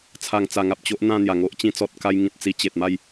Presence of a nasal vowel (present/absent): present